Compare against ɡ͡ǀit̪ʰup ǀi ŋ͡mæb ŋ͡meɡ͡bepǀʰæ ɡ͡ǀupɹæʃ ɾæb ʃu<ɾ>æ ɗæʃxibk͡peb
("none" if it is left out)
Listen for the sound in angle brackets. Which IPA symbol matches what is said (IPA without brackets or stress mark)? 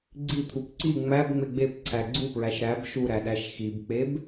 ɾ